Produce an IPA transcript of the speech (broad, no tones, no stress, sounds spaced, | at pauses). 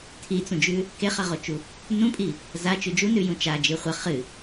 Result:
tʰ i t͡s ũ d͡ʒ ʉ | k e χ ɐ ʁ o t͡ʃ u | n ũ pʼ i | z a t͡ʃ ʉ d͡ʒ u n ʉ j ũ t͡ʃ a d͡ʒ ɨ χʷ ɐ χ ɨ